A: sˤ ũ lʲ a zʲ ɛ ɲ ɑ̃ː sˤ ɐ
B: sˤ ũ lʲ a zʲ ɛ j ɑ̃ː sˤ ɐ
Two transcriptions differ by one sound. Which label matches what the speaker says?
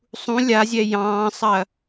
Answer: B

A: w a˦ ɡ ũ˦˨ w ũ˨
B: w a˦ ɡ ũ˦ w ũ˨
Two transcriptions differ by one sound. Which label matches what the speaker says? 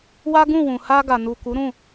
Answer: A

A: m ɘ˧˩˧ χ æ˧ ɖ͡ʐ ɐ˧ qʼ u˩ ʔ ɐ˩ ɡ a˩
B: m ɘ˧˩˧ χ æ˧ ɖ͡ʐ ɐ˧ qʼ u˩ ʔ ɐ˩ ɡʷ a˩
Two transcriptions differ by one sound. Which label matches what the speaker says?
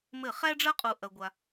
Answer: B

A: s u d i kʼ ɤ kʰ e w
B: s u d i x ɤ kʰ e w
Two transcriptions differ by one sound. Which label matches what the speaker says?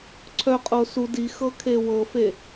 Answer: B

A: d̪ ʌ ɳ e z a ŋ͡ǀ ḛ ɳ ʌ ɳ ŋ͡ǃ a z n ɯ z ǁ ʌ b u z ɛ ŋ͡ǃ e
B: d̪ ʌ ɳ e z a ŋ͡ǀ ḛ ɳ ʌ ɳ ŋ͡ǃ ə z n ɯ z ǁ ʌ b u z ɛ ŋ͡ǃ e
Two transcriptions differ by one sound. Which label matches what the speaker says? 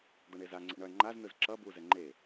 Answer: A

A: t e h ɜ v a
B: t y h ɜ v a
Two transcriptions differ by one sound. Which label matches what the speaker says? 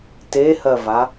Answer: A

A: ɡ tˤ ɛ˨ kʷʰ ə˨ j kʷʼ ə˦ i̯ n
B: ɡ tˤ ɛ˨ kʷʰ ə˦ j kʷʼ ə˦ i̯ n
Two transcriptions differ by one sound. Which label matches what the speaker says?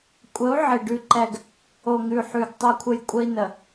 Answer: A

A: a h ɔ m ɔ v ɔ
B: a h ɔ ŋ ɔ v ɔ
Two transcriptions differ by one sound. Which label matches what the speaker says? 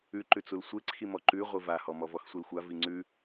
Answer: A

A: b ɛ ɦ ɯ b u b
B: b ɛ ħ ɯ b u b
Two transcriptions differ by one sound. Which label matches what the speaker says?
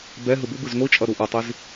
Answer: A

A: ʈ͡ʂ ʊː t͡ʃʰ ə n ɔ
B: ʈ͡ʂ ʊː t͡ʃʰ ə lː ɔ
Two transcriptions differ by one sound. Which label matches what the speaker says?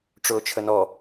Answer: A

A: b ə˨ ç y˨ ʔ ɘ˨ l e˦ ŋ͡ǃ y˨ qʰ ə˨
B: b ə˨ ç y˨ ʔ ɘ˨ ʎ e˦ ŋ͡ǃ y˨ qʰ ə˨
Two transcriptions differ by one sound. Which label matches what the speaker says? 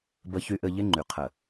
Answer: B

